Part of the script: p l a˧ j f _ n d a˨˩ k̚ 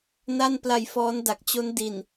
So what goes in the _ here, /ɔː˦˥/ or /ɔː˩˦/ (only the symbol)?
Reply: ɔː˦˥